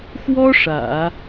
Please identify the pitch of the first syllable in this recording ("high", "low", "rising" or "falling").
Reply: high